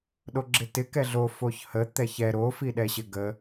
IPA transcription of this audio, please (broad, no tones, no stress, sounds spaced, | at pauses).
ɗ o ɡ͡ǁ ɪ t ɪ k ɛ ɮ o f o ç h ə t̪ ɛ ç ɛ ɾ o f i ɗ ɛ ɕ ɪ ɡ ə